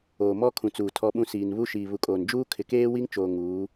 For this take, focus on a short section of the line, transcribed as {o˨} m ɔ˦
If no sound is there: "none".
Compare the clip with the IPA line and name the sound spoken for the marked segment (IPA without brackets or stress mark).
oː˨